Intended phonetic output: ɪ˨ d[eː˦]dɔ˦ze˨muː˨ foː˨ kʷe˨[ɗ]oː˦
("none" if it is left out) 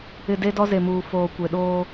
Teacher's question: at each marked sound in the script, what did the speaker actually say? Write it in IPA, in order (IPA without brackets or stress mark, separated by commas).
e˦, ɗ